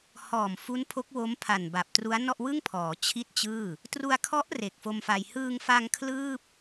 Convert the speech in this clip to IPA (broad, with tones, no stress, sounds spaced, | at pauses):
h ɔː˨˩ m f u˦˥ n pʰ o˦˥ k̚ w o˦˥ m pʰ a˨˩ n b a˨˩ p̚ t r u˦˥ a̯ n ɔ˥˩ ʔ w ɯ˥˩ ŋ pʰ ɔː˩˦ t͡ɕʰ i˥˩ t̚ t͡ɕ ɯː˥˩ | t r u˧ a̯ kʰ ɔ˦˥ ʔ r e˨˩ k̚ f o˧ m f a˧ j h ɯː˧ ŋ f a˧ ŋ kʰ l ɯː˥˩ p̚